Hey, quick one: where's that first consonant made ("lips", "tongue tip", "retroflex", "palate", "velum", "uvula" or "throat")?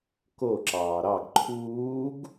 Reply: velum